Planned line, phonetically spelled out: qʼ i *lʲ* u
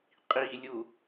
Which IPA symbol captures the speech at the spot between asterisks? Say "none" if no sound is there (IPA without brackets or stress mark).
lʲ